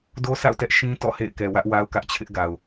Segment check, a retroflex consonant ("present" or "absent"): absent